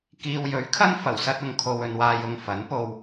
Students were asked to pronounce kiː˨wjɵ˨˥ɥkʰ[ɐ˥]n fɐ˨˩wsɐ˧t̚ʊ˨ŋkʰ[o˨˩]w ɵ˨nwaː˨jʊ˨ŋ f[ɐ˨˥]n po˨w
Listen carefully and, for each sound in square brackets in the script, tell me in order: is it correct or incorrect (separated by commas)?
correct, incorrect, correct